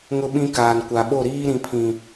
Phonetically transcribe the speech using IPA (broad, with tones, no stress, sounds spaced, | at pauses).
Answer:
ŋ ʊ˦ ɓ ĩ˦ k aː˨ n kʷ a˨ ɓ o˦˨ ɾ iː˦ ɾ ĩ˨ pʰ ĩ˨